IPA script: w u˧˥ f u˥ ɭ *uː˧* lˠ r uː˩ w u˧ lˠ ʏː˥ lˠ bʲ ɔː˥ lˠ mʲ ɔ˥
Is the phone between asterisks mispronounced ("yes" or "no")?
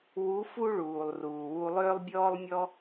yes